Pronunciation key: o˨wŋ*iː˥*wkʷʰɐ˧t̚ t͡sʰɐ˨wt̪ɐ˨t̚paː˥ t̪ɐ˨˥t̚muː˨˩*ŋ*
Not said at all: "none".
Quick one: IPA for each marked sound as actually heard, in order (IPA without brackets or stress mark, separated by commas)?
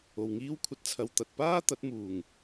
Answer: iː˥, ŋ